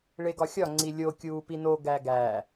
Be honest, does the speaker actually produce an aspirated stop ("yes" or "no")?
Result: no